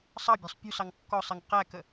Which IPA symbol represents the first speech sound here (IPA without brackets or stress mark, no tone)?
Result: sˤ